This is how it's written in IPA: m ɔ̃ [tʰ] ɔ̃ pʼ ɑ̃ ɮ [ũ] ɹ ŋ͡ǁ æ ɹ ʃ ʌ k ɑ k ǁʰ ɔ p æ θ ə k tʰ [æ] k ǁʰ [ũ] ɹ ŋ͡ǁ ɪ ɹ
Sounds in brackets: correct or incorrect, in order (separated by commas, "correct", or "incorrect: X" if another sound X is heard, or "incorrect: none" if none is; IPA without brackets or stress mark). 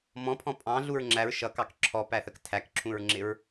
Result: incorrect: pʰ, incorrect: u, correct, correct